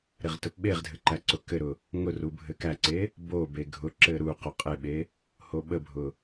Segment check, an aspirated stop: absent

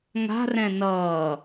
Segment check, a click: absent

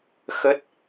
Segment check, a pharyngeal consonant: absent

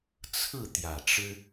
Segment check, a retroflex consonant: present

